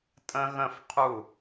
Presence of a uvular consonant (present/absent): present